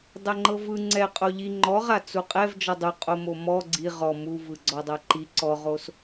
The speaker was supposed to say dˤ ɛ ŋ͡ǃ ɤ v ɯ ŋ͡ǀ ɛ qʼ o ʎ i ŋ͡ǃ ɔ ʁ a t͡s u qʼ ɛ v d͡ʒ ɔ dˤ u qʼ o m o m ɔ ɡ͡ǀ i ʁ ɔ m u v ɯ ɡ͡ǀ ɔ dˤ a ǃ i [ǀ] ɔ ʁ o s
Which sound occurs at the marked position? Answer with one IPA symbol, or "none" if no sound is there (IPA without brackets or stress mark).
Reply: ǀ